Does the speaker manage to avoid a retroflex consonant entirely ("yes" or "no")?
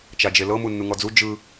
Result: yes